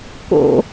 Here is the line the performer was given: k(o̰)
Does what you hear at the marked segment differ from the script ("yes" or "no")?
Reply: no